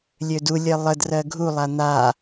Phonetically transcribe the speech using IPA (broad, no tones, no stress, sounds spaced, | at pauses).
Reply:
lʲ ø d u lʲ ɜ lˠ ə d r ɜ ɡʱ u lˠ a n̪ a